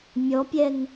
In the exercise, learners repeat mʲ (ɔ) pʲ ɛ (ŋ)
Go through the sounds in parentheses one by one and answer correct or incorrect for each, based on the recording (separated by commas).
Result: correct, correct